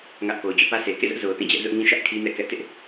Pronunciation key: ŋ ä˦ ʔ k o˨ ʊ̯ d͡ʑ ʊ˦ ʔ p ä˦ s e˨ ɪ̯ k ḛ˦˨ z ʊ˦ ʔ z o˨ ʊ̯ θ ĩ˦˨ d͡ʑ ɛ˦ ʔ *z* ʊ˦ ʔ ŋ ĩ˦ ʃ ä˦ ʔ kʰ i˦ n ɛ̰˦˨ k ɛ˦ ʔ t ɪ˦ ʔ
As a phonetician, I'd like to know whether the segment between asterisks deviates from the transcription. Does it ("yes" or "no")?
no